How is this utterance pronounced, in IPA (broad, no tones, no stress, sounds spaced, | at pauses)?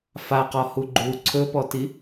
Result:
f a q ɔ h u ɡ͡ǃ u ǀʰ ɵ p ɔ t i